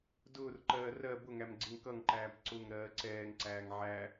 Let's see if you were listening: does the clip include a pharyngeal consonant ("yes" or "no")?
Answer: yes